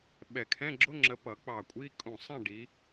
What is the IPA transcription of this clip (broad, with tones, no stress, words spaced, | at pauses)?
ɓɛ˧˩kʰɛ̃˧˥˧ɡ͡ǁʊ˧˥˧ŋ͡ǁə˨˦ pʌ˨˩˦k͡pɑ˧˩ kʷʼi˧˥˧ kʼũ˧˩sˤɛ̃˥˨ɖi˨˦